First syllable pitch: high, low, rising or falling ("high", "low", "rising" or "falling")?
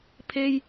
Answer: high